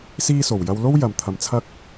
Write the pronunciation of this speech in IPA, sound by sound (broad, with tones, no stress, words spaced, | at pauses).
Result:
siː˥ so˨wjɐ˥w lo˥wjɐ˨m t̪ʰɐ˧mt͡sʰɐ˥k̚